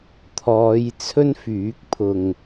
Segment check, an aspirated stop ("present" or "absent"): present